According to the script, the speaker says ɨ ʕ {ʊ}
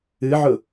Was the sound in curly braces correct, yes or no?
yes